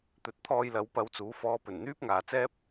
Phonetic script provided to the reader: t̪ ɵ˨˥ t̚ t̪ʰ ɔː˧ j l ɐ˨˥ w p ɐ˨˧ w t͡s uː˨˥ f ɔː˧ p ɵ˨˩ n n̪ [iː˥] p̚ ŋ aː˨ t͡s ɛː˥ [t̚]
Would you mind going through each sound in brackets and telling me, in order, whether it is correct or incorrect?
incorrect, incorrect

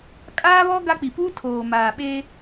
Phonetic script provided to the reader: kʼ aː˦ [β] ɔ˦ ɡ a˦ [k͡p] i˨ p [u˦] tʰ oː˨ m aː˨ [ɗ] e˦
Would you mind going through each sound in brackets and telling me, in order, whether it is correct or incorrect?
correct, correct, correct, incorrect

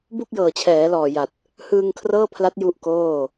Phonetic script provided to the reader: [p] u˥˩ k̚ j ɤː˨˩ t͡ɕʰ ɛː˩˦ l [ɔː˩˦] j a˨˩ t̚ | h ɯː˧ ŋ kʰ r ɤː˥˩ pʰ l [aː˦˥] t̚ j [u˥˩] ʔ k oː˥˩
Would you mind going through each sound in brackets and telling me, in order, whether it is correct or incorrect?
incorrect, incorrect, incorrect, correct

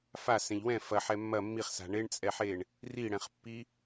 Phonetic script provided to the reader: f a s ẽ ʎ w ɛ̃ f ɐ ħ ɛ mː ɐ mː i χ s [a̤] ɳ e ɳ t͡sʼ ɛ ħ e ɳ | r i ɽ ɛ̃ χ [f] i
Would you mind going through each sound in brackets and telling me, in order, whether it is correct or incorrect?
correct, incorrect

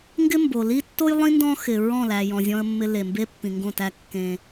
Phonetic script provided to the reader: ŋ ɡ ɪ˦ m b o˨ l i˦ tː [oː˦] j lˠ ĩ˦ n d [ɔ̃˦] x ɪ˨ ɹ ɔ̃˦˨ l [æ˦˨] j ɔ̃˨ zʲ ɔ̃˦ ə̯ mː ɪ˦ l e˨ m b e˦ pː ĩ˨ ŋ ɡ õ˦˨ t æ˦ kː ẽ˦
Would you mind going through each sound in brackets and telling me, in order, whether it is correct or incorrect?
incorrect, correct, incorrect

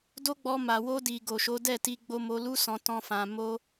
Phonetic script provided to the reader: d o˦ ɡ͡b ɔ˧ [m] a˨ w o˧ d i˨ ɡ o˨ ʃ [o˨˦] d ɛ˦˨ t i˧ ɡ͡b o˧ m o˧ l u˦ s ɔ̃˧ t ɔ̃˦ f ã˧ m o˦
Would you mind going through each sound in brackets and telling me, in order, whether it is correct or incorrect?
correct, correct

